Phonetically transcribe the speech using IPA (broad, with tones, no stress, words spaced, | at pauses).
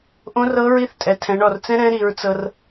ʔõ˧˥rɤ˧˥ɹi˧˥θtʼɛ˩ tʰɛ̃˩˧ɳɔ˩rt͡sɛ̃˥ɾɛ̃˧˥ ɾi˩˧ɹt͡sɤ˧r